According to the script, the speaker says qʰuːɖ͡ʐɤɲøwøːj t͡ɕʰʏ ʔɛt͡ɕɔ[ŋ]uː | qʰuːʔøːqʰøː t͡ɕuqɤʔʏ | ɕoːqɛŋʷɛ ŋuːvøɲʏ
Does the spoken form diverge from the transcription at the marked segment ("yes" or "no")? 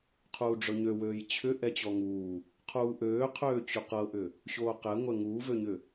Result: no